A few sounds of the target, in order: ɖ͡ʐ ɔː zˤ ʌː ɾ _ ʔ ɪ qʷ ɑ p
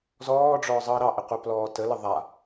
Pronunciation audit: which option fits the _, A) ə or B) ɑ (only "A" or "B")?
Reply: B